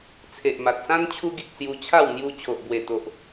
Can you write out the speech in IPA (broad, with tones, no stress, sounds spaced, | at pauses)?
t͡sʰ e˨ ʔ m a˨ t̚ s ã˦ n t͡ɕʰ u˧ ɡ i˨ k̚ s j u˧ t͡ɕʰ a˥˧ w n̪ j u˧ t͡ɕʰ o˨ ʔ b w e˨˩ t̪ o˨ ʔ